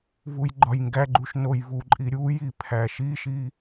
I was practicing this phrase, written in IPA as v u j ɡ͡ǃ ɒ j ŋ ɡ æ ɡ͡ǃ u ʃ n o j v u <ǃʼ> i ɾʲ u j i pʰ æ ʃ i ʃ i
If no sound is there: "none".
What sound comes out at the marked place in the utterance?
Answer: ǃʼ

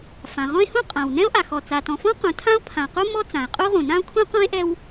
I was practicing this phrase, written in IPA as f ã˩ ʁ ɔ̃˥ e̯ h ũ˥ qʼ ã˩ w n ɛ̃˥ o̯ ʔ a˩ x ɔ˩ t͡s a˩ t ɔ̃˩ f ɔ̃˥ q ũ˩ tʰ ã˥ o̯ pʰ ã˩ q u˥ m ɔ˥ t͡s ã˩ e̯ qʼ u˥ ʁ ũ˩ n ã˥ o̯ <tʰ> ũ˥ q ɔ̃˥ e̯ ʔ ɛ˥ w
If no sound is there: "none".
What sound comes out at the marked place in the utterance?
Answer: kʰ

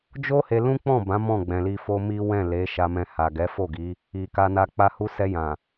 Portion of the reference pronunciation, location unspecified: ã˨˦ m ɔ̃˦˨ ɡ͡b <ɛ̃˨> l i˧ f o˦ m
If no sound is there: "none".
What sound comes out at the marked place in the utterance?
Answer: ɛ̃˨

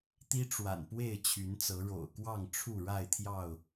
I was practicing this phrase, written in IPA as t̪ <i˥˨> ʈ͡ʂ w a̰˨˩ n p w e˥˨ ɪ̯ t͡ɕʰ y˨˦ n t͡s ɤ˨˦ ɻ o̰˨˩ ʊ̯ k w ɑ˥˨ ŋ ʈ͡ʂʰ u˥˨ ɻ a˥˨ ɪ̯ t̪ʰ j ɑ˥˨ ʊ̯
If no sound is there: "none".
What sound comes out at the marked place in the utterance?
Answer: i˦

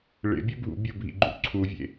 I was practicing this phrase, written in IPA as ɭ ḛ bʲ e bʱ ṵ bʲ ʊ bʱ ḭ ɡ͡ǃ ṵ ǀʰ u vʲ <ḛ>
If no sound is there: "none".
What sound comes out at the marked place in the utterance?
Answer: ḛ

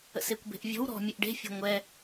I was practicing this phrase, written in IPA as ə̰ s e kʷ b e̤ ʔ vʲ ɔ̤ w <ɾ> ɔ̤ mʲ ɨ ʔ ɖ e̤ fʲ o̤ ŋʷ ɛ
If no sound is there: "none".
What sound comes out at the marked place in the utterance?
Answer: ɾ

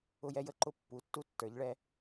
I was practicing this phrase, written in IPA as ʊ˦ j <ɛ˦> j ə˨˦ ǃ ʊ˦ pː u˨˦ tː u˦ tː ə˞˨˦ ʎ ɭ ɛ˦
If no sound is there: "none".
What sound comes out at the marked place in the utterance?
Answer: ɛ˦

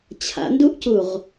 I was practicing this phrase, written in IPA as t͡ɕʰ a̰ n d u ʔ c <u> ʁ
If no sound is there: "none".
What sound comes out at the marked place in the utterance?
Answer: u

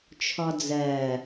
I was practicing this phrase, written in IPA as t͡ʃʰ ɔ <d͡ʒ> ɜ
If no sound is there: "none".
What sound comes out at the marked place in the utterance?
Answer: d͡z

